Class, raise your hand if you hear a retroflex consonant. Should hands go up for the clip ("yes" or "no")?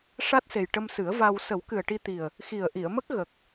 yes